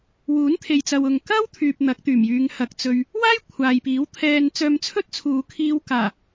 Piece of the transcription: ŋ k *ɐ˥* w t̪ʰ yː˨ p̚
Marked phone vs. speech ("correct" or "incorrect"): correct